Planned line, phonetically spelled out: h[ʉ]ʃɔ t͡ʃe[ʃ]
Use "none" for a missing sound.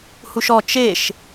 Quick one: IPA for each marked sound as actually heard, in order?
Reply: u, ʃ

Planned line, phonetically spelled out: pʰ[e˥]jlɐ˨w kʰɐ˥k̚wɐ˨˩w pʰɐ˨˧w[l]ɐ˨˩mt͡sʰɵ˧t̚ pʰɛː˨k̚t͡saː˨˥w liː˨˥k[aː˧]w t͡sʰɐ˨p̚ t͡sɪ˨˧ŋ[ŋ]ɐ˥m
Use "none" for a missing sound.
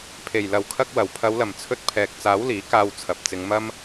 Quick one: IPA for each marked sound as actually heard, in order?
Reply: e˨˩, l, aː˧, m

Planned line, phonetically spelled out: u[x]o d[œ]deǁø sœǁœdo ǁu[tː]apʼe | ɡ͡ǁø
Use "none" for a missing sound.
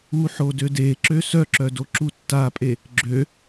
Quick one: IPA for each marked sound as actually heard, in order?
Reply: ħ, ø, tː

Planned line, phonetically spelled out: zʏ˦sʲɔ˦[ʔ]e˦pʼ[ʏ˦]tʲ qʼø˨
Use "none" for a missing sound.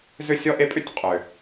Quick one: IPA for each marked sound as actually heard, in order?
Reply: ʔ, ʏ˦

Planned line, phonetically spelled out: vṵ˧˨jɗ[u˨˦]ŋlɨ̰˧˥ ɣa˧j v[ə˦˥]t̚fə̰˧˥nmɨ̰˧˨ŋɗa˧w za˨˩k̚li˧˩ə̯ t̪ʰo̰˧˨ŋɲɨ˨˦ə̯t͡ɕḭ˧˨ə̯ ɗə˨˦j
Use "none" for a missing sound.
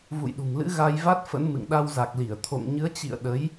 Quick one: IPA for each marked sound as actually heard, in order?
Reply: ṳ˨˩, a˦˥

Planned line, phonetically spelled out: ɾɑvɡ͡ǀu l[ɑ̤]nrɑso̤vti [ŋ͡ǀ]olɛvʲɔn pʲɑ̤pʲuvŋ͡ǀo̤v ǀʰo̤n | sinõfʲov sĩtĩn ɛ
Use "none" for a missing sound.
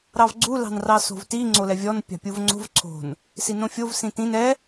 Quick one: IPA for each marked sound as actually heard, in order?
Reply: ɑ̤, ŋ͡ǀ

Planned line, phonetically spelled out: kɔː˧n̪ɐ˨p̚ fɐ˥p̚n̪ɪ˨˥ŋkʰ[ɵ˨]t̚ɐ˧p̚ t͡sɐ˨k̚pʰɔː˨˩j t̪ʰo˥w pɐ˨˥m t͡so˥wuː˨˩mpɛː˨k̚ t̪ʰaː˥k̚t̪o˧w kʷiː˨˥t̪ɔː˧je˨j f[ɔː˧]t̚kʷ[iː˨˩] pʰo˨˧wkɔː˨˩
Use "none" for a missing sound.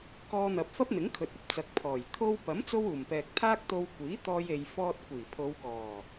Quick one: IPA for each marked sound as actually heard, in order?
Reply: ɵ˨, ɔː˧, iː˨˩

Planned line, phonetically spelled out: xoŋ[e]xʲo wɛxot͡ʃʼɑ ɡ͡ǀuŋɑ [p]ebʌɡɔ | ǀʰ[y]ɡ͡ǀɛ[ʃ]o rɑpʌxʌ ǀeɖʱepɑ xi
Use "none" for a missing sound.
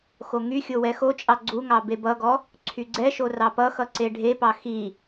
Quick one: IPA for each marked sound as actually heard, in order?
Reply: y, b, y, ʃ

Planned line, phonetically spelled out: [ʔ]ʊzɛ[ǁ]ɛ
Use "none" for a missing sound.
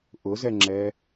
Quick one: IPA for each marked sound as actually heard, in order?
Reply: ʔ, ŋ͡ǁ

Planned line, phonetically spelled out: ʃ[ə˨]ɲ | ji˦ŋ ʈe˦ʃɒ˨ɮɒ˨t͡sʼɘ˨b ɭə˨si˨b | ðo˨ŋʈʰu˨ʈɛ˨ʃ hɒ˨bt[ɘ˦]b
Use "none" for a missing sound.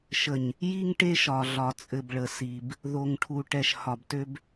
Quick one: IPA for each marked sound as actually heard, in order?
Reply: ə˨, ø˦

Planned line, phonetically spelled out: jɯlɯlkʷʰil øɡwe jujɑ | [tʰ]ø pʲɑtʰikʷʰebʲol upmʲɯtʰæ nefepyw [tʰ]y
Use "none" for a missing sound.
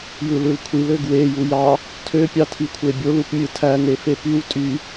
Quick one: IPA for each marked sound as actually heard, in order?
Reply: tʰ, tʼ

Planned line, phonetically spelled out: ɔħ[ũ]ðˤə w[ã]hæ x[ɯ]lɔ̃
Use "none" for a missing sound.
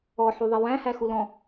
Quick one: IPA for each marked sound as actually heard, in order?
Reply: u, æ̃, u

